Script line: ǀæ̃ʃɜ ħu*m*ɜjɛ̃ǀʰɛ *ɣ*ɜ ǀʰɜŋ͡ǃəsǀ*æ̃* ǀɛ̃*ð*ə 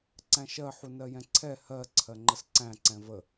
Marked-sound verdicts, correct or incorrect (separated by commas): incorrect, incorrect, correct, incorrect